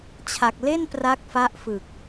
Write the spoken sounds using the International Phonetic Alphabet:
t͡ɕʰ a˨˩ k̚ l e˥˩ n p r a˦˥ k̚ f a˦˥ ʔ f ɯ˨˩ k̚

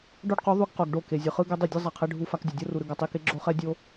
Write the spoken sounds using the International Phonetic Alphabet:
ɖ o˦ ɖ q u˨˦ ðˤ u˦ ɡ q o˨ ɡ ɖ o˦˨ k e˨ zʲ ɯ˨ χ ɯ˦ ɡ ɛ˦ dˤ i˦˨ dʲ ɯ˦ zˤ a˨ qʰ e˧ ɖʱ u˦ f a˧ k dʲ o˨ dʲ o˦ r u˨ ɾ ɯ˧ ɡ a˨ tˤ i˧ k e˦ ɡ͡ǁ o˦ χ ɛ˦ dʲ o˦

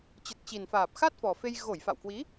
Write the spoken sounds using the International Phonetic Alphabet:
t͡ɕ ə˨˩ t̚ t͡ɕ i˨˩ n f aː˨˩ p̚ x a˦˥ t̚ f ɔ˨˩ f e˧ j ɣ o˧˩ j f a̰˧˨ w k w i˨˦

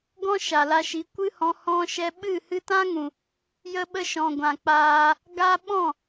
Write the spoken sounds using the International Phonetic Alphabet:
ɡ ɔ̃˦ ʃ a˨ l a˧ ʃ i˨˦ kʷ ɨ˦ h ɔ̃˧ h ɔ̃˧ ʃ ɛ˧ ɓ ɨ˦˨ h ɨ˧ t ã˦ ŋ ũ˨ | j ə˧ ɓ ə˧ ʃ ɔ̃˨ ɡʷ ã˨ k͡p aː˧ | ɡ a˦ ɓ ɔ̃˦˨

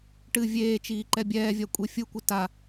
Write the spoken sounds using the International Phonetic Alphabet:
ʈ ɨ vʲ eː t͡ʃ iː ǃ ɛ bʲ ɛː vʲ a kʷʼ e fʲ ɯ kʷ ɨ t a

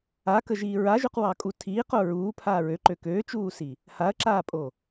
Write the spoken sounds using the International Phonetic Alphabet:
a k ə ʒ iː ɹ a ʒ ʉ q w ɑ kʼ u tʰ iː q o ɹ uː pʰ aː ɹ ø ǃ ø k øː t͡ʃ uː s i | h a ɐ̯ ǁ aː pʼ o

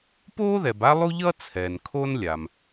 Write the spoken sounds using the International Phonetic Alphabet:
p oː˥ ð ɛ˩ b a˥ lˠ u˥ ʎ ʌː˥ t͡sʰ ɛː˩ n kʰ o˥ n lʲ a˩ m

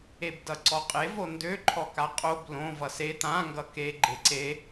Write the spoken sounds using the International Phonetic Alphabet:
e b d ʌ ǀ ɔ qʼ e v o n d ø ǃʰ ɔ k a qʼ o b l õ v ʌ s e t̪ ã ŋ ɡ ʌ k e ɡ͡ǃ e ǀ e

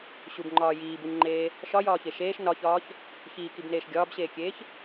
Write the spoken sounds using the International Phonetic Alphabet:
ɕ u b ŋ͡ǃ ɒː j iː b u ɲ ŋ͡ǃ eː | ʃ ɒ j ɒː ç e ʃ eː ʃ n ɒ ç ɒː ç | ç iː k i b n eː ʃ ɡʲ ɒː b ɕ eː kʲ eː ç

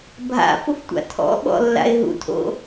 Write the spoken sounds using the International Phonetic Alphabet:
bʱ a̰ f ʊ f tʷ a̰ tʰ ɔ̰ ɓ ɔ̰ lː a̰ ɪ̯ ɦ ṵ tʰ o̰

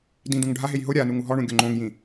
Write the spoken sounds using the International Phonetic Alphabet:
d ĩ d ũ ŋ ɖʱ a ɦ e j ɦ ʊ ɾʲ a n u ŋ u ɦ ɔ ɳ ũ ɡʲ o ŋ͡ǃ õ ŋ j ĩ

